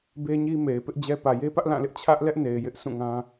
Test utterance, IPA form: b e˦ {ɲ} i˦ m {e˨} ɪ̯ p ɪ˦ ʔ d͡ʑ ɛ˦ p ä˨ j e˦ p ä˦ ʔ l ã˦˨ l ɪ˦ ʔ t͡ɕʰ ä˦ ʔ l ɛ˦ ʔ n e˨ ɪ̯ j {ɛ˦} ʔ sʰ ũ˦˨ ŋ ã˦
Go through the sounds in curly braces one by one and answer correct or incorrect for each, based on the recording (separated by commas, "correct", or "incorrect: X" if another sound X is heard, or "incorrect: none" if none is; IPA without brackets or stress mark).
correct, correct, incorrect: ɪ˦